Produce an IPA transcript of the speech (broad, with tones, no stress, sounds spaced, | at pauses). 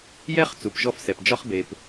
j ɛ˥ χ t͡s u˩ p ʒ ɔ˥ f s ɛ˩ p d͡ʒ ɒ˥ χ b e˩ p